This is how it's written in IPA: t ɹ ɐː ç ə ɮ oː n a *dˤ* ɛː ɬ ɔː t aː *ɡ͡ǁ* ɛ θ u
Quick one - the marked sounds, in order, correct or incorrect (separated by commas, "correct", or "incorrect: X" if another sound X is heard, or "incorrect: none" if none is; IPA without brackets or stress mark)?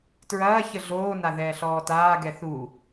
incorrect: ð, incorrect: ɡ